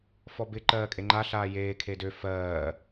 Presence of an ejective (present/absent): present